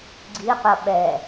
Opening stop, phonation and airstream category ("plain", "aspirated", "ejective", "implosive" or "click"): click